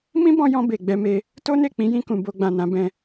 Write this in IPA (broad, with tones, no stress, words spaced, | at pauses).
mĩ˦bɔ̃˧jɔ̃˧ be˨ɡ͡bɛ˧me˧ | to˦ne˦˨ k͡pĩ˨˦jĩ˧kũ˨ bo˧ɡ͡bã˨nã˧ bɛ̃˧